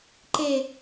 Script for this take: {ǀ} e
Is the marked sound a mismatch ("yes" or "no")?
yes